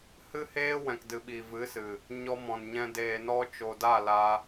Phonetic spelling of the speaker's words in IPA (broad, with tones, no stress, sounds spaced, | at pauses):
h ɨ˦ h eː˦ w ɛ̃˨ k d ɨ˨ ɓ i˨ v ɨ˨˦ s ɨ˨ | ɲ ɔ˧ m ɔ̃˨ n ɲ ɛ̃˧ d eː˨ n ɔ˧ t͡ʃ o˨ d a˦˨ l a˧